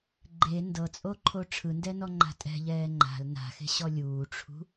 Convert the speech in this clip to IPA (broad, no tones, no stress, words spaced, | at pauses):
ɡ͡ǃe ndɤt͡sʼoǃʰo ʈ͡ʂʰɯndɛnɔŋ͡ǃa̤ tʼɛ̤ʎɛː ŋ͡ǃa̤l na̤xe̤ɕɔ lʲuːʈ͡ʂʰṳ